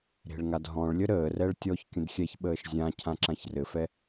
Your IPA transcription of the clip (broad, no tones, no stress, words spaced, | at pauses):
ɾe̤ɭŋadɦɔ̃ɭlʲə ɾəːrɛɭ tʲɔç kʲə̃dxʲɛçɓəːʃ zʲã cʰãǁãçrɘfɛ